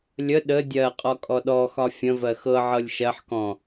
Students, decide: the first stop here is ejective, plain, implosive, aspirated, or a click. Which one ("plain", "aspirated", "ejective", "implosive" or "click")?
implosive